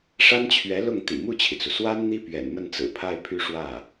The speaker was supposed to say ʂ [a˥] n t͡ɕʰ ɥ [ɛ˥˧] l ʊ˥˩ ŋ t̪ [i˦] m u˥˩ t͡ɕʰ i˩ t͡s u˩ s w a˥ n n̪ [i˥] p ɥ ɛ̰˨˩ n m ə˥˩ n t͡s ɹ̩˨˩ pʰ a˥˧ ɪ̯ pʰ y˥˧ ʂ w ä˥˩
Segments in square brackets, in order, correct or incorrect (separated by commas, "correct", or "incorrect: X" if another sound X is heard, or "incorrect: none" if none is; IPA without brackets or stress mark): correct, incorrect: ɛ˧˥, incorrect: ḭ˨˩, correct